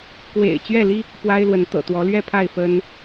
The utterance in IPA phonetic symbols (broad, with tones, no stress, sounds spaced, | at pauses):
k w ḛ˨˩ ɪ̯ t͡ɕ ɥ ɛ˥˨ l i˦ | p w a˦ ɪ̯ l w ə˨˦ n t̪ ɤ̰˨˩ t̪ w ɔ˨˦ l ɥ ɛ˥˨ pʰ a˥˨ ɪ̯ f ə˦ n